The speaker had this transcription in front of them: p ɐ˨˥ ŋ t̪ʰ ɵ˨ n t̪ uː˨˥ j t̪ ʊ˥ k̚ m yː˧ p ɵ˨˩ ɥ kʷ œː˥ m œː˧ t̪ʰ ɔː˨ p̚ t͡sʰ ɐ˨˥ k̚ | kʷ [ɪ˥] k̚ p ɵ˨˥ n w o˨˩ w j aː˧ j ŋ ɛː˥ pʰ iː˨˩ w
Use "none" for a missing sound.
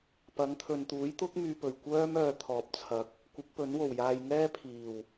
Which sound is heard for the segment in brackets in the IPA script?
ɪ˨˥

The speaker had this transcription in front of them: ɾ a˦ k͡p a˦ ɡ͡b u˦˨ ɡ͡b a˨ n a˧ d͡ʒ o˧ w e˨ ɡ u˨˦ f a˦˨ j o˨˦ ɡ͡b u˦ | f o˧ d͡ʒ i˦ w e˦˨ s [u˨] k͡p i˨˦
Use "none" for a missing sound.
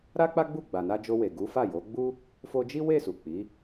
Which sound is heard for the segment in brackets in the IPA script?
u˨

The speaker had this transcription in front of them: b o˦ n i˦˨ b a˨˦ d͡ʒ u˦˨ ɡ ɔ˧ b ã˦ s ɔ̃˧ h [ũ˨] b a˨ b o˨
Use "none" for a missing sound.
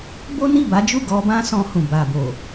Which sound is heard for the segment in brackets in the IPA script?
ũ˨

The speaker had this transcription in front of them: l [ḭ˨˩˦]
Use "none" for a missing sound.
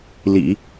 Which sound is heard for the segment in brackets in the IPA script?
ḭ˨˩˦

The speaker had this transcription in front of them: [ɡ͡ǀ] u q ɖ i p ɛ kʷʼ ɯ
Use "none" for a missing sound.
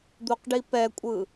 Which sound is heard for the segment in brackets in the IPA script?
d̪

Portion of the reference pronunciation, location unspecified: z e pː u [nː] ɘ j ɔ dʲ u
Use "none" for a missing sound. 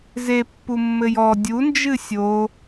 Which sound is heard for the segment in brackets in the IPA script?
mː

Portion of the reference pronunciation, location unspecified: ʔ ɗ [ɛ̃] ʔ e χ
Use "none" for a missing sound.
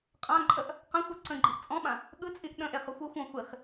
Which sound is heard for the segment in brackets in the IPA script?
ə̃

